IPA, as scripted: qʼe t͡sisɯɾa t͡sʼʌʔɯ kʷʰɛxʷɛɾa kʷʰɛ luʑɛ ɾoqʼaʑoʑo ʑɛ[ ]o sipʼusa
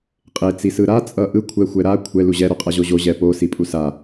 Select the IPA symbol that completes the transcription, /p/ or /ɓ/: p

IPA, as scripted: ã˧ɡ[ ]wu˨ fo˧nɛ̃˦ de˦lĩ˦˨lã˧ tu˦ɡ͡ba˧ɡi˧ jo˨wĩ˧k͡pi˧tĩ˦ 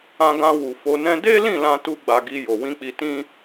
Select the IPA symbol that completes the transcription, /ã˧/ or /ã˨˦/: ã˧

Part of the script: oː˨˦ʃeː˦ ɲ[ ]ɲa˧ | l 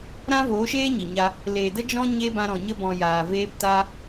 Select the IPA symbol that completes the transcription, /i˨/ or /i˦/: i˨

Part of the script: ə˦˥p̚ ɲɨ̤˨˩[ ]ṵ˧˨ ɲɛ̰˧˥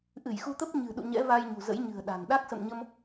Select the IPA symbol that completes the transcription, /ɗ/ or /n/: ɗ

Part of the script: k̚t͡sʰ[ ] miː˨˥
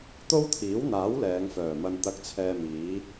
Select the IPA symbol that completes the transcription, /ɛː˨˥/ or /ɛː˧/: ɛː˧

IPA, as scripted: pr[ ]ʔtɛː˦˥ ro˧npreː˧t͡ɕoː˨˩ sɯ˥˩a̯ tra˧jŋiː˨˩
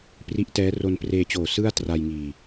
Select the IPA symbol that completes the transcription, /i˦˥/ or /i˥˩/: i˦˥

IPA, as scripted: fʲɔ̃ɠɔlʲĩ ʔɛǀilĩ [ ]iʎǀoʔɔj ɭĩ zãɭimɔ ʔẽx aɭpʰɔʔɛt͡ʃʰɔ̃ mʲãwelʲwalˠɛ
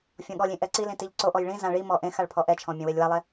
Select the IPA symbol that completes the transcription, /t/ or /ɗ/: t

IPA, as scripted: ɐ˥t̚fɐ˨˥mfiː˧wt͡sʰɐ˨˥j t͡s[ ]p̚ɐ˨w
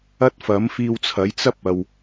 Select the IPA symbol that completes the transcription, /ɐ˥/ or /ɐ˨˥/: ɐ˥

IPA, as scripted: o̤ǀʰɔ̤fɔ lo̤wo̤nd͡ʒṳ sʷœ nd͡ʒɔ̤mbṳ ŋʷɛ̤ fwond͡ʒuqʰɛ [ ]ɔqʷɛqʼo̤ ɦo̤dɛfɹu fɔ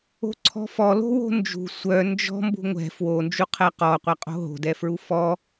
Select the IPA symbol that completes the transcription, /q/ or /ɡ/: q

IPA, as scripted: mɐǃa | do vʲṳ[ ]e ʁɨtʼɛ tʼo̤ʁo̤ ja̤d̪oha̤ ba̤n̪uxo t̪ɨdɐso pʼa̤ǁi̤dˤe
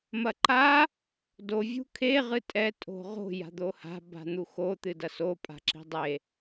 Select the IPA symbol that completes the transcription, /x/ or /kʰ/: kʰ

